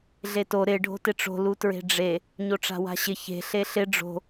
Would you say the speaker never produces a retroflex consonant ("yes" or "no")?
no